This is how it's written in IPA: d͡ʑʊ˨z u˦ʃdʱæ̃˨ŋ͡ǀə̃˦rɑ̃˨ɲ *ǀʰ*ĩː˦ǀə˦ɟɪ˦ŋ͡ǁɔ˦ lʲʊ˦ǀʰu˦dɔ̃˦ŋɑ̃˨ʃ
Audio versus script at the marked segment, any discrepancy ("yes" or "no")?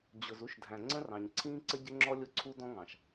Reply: no